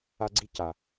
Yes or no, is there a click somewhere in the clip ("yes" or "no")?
yes